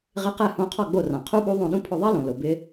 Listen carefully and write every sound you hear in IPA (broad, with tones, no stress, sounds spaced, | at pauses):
ʁ ɪ˧˥ q ɛ˦˨ h õ˧˥ qʰ ɔ˦˨ ɡ͡b o˦˨ r ã˩ qʰ u˥ ɓ u˧˥ ðˤ õ˦˨ ɗ ũ˥ pʰ ʊ˦˨ ðˤ ɛ˥ l õ˩ l ʊ˩ b ɪ˧˥